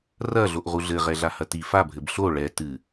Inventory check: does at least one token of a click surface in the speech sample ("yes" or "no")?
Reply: no